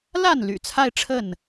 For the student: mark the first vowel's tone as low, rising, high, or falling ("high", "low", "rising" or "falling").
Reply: falling